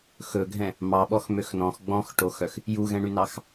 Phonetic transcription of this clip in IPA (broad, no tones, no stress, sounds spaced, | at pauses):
x ɵ ɡʱ ɛ̃ | m ɑ ɓ ɔ x m ø x n ɔ̃ x ɡ͡b ɔ̃ x ʈ o x œ x | j u ɣ ɛ̃ ɳ y n ɑ x